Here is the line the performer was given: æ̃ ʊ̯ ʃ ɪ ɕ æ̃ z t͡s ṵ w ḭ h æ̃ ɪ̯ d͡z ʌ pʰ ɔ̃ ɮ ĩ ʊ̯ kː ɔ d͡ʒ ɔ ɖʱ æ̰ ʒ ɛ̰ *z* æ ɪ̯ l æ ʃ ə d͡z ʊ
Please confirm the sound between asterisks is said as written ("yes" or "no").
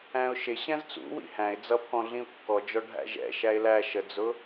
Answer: no